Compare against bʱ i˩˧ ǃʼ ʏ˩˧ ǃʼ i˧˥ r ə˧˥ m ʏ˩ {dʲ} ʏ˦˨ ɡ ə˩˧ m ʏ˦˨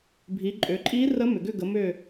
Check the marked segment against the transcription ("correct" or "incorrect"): incorrect